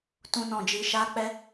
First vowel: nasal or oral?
nasal